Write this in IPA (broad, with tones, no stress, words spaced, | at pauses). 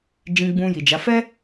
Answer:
d͡ʒĩ˧ɡ͡bũ˧ ji˨d͡ʒa˨˦ fɛ˦